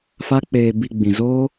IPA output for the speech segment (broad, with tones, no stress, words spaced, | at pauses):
fa˦k͡peː˧ bi˧ɡ͡bĩ˨zoː˦